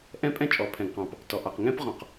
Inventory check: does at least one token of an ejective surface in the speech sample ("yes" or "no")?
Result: yes